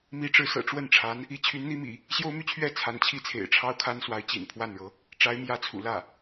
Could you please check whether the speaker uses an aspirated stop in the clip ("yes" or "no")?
yes